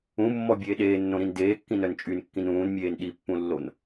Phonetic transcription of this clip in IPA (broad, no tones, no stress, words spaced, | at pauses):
ũmːɔbʲeː ɗeːnːõɾĩn deːkːĩnœn t͡ʃʼynkːĩn ũːnmʲeːn ɗipːũlːon